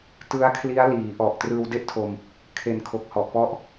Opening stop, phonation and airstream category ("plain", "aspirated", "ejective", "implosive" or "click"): plain